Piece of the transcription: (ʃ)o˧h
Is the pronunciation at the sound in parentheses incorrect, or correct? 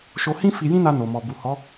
correct